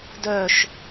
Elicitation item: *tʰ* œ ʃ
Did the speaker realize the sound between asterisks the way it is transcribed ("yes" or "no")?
no